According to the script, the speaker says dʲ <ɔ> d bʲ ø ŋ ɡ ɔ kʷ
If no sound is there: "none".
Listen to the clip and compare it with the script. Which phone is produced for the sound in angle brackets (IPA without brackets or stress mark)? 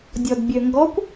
ɔ